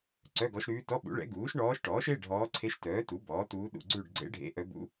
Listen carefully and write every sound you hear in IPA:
ǀ œ˧˥˧ ɡ ɔ˧˥ ʃ ɾ ʉː˧˥ t ɔ˧˥˧ ɓ ṵ˩˥ ɭ ɛ̰˩˥ ɡ uː˩˥ ʃ ɳ ɔː˧˥ ʃ ʈ ɔː˩˥ ʃ e˧˥˧ ɖʱ ɔː˧˥ ǀʰ e˧˥ ʃ t œː˩˥ t u˩˥ b ɔː˩˥ t uː˧˥ ɗ ṵ˦˨ ɡ͡ǀ ʉ˦˨ ɖ ɡ͡ǀ ḛ˧˥ ɖʱ ḛ˧˥˧ ʔ œ˧˥ b ṵ˧˥

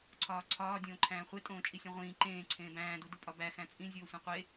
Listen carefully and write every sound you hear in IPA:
ǀʰ ɒː ǀʰ ɒː dʲ õː ǃʰ æ̃ː χʷ e tʼ õː t͡ʃʼ i sʲ õ ʁʷ ĩː ǃ ẽː ǀʰ ẽː b æ̃ː d u d u pʼ ɒ b æ x æ̃ t͡sʼ ĩ zʲ oː sʷ ẽ qʷ e

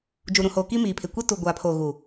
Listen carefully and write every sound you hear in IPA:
d͡ʒ u˨ ɾ ũ˨ h oː˨ k i˦ m iː˨ pʰ ɪ˨ kʷ i˦ t u˨ ɡʷ aː˨ pʰ oː˨ ɣ u˨

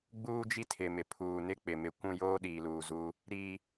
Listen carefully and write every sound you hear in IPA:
ɡ͡b uː˦ d͡ʒ i˦ tʰ ɪ˨ m ɪ˨ pʰ uː˨ n ɪ˦ k͡p ɪ˨ m ɪ˨ kʷ ũ˦˨ j oː˦ ɗ iː˨ l uː˨ z u˦ | ɾ i˦

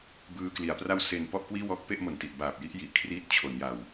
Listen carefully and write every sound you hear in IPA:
b ɯː˧ k l i˩˦ a̯ p r a˥˩ w s e˨˩ n p ɔ˥˩ ʔ k w iː˥˩ w ɔː˦˥ k̚ p e˥˩ ʔ m o˨˩ n t i˨˩ ʔ b aː˨˩ p̚ j i˦˥ ʔ j i˨˩ ʔ kʰ r iː˥˩ t̚ t͡ɕʰ o˩˦ n j a˨˩ w

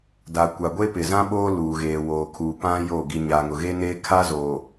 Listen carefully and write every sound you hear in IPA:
d a˨ kʷ a˨ ɡʷ e˦ p ɪ˨ z ã˦ ɓ oː˦ l uː˨ ɣ eː˨ w oː˨ kʰ uː˨ p ã˦ j o˦˨ ɡ i˨ ɲ aː˨ ŋ ʊ˨ ɣ e˦ n eː˦ kʰ a˦ z o˨

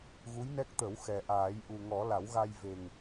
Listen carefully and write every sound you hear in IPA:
ɣ u˧˥ j n ɛ˦˥ k̚ t̪ ə˨˩˦ w x ɛ˨˩ ʔ aː˨˩˦ j ʔ u˨˩ ŋ ɔ˨˩˦ l a˨˩˦ w ɣ a˧ j v e˨˩ ŋ

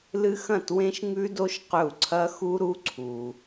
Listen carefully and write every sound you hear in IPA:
l ɨ˦˥ x ɐ̃˥˩ t w ẽ˦˥ ʃ ŋ ʉ˦˥ d o˦˥ ʃ q ɵ˥˩ u̯ ǀʰ ɐ˦˥ x u˦˥ ɾ u˦˥ ǀʰ u˩

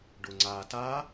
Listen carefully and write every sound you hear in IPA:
ɖ ʊ ŋ͡ǀ a t a

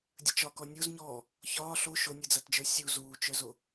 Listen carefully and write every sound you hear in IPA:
dʲ ə t͡ʃ ɒ k ɔ nʲ o z ɲ ɔː | ç ɒː ɬ o ʃ o nʲ ɯ d͡z a t d͡ʒ ə˞ sʲ u z uː t͡ʃ œ z o

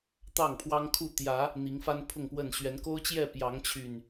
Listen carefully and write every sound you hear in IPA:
t̪ ɑ˥˨ ŋ pʰ w ɑ˦ ŋ kʰ u˥˨ t̪ j ä˨˦ | n̪ i˨˦ ŋ f a˦ n pʰ ʊ˥˨ ŋ p w ə˥˨ n ɕ ɥ ɛ˨˦ n k o˦ ʊ̯ t͡ɕ j ɛ˥˨ p j ɑ˨˦ ŋ t͡ɕʰ y˨˩ n

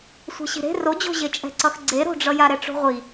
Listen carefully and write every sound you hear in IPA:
sʷ ɛ̤ ɕ i̤ ɾ e̤ r o d͡ʑ o̤ ʑ e t͡ʃʼ ɛ̤ ǀ ʌ x ɡ͡ǀ e ɾ o̤ ɖ͡ʐ ʌ j a ɾ ɛ ʈ͡ʂ o̤ ʁʷ i

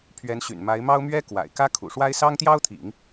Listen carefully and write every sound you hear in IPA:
pʰ ɥ ɛ˧˥ n ɕ y̰˨˩ n m a˧˥ ɪ̯ m ɑ˥ ʊ̯ m ɥ ɛ˥ k w a̰˨˩ ɪ̯ k ä˥ kʰ ṵ˨˩ ʂ w a˥ ɪ̯ s ɑ˥ ŋ t̪ j ɑ˥ ʊ̯ t̪ʰ ḭ˨˩˦ ŋ

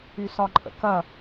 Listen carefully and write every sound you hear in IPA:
y s ɒ ǃʼ ə̰ k ɐ

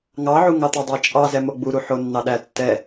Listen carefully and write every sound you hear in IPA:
ŋ ɑ ʕ u ŋ ɑ t̪ ʊ dˤ æ t͡ʃʼ ɑ z ɛ m o ɡ͡b u ɾ u ħ o nː ɑ ɗ æ tː ɛ

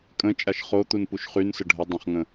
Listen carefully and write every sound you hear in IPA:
kʼ ə̃ t͡ʃʼ a ʃ χ o t̪ u n p u ʃ χ y n s ə ɖʱ ə dˤ ə̃ χ ŋ ə̃

